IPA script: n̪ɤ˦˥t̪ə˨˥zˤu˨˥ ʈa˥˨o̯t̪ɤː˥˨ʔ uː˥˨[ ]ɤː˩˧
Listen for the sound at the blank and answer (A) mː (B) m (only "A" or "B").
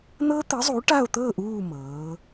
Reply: B